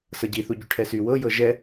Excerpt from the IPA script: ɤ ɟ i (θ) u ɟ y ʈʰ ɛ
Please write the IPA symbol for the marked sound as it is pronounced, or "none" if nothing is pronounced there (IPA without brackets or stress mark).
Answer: θ